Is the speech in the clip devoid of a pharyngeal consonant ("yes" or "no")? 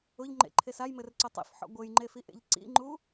no